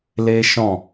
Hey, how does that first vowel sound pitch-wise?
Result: high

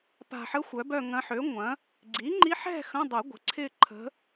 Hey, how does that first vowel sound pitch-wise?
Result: low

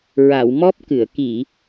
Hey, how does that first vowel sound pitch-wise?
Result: low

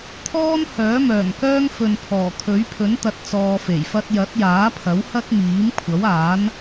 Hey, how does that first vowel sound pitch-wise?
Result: high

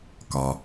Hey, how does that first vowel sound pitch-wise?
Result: low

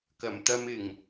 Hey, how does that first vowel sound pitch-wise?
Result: low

